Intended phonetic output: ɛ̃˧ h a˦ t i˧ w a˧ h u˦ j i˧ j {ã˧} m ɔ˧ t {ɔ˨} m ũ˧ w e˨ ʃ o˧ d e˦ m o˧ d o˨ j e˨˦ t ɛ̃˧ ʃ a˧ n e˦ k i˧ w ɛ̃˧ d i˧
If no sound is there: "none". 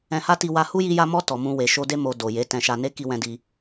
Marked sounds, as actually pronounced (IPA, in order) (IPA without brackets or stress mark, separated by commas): a˧, ɔ˨